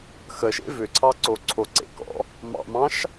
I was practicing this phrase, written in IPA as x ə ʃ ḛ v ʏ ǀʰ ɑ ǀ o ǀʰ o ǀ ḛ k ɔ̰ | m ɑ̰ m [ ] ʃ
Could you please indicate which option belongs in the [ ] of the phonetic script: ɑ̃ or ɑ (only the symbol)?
ɑ̃